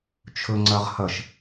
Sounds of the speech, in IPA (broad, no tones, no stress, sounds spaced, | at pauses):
t͡ʃʰ ɵ ŋ͡ǀ ɜ ʁ h ɐ ʃ